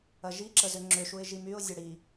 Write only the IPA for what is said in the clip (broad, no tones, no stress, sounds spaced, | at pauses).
ɐ ʒ i ǁ ə z ʏ ŋ͡ǁ ʏ ʃ u ɪ̯ ʒ i m y ʊ̯ zʲ ɐ ɽ i